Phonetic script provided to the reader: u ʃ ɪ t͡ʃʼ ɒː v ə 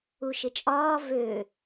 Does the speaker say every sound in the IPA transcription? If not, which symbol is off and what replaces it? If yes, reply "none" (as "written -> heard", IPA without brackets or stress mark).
ə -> ø